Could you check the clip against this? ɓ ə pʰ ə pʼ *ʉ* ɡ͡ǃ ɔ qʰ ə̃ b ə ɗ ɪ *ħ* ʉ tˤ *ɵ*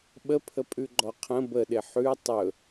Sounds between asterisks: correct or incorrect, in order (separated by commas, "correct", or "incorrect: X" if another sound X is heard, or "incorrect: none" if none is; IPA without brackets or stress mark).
correct, correct, correct